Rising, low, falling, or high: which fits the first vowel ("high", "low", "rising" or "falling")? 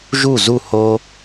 falling